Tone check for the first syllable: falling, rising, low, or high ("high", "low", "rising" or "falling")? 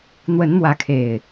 rising